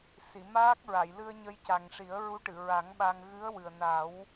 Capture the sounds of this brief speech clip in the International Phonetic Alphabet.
s i˨˩˨ m aː˦˥ k̚ ɹ a˨˩˨ j l ɨ˧ ə̯ ɲ ə˧ j c a˨˩ ŋ ʂ i˨˩˦ ə̯ ɹ u˧˥ ʈ ɨ˨˩˨ ɹ a˨˩˦ ŋ ɓ a˧ ŋ ɣ ɨ˧˥ ə̯ w ɨ˨˩ ə̯ n a˨˩˦ w

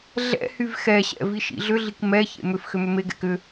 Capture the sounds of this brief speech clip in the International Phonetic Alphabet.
ɮ ɛ̰ h y v x ɛ ɕ ɛ̰ v i ʃ ḭ ɮ ʏ ɮ i k m ɛ ç ḛ m ʏ f x ʏ m ʏ m e ɡ ɛ̰ k ʏ

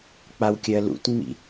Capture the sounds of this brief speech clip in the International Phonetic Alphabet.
k͡p a w kʲ ɜ l ṵ t ŋ͡m ḭ

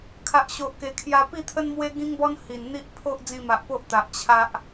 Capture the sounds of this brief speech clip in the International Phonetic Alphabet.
kʰ a˨ ʔ ɕ o˨ ʔ k e˨˩ kʰ j a˧ p i˥˧ t̪ʰ ə˦ n m w e˦ ɡ ĩ˦ ŋ b ɔ˦ n h i˨˩ n n̪ i˦ ʔ pʰ o˦ ʔ d͡z ĩ˧ m a˨ ʔ p o˦ ʔ t̪ a˨ ʔ t͡ɕʰ a˦ ʔ

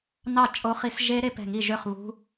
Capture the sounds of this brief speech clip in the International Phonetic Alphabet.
n ɑ˥˨ t͡ʃʼ o˦˥ χ i˦˥ s ʒ e˦˥ ɾ e˦˥ p ɛ̤˥˨ ŋ i˥˨ ʒ ø˥˨ χ β ṳ˦˥

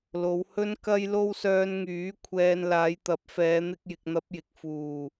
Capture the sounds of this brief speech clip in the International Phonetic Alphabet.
l o˨˧ w h ɵ˥ n k ɐ˥ j l o˥ w s œː˧ n ŋ yː˨˥ kʷʰ ɛː˧ n l aː˨˧ j t̪ ɐ˨˥ p̚ f ɛː˨˧ n̪ ɪ˥ k̚ j ɪ˨˥ k̚ n̪ ɐ˥ p̚ j ɪ˨˥ k̚ f uː˨˩

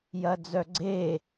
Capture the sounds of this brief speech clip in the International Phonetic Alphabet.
j ɐ d͡z œ ɡ͡ǀ e

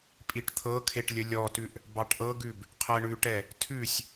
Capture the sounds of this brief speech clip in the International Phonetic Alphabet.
pʼ i ʈ t̪ʰ ɤ kʰ e ʈ lʲ ə lʲ ɔ t ʉ ʔ | b ɑ ʈ ʔ ɤ ɡ ʉ b | qʰ ɜ ɳ ʉ ʈ ɛ | tʰ ʉ sʲ

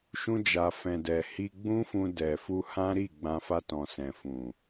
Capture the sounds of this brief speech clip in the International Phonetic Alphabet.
ʃ ũ˧ d͡ʒ a˨ f ɛ̃˨ d ɛ˨ h i˧ ɡ͡b ũ˦ f ũ˧ d ɛ˨ f u˧ h ã˦ ɾ i˦˨ ɡ͡b ã˧ f a˧ t ɔ̃˨ s ɛ̃˨ f ũ˨

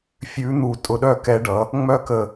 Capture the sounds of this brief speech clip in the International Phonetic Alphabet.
fʲ ʉ˨˥ n̪ u˧˩ tʼ ʊ˧˩ ɗ œ˥˧ k ɛ˨˥ ɖ ʌ˩˧ | ŋ͡m œ˥˧ k ə˧˩

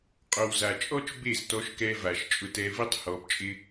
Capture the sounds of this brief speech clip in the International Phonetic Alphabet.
qʼ o˨ w z a˨ t͡ʃʼ ɔ˦ t͡ʃ b e˦˨ z t ɔ˧ ʃ k ɛ˧ v a˨ ʃ t͡ʃʼ ʊ˧ t ɛ˧ v i˦ tˤ h ɔ˧ b t͡ʃʼ ɪ˦

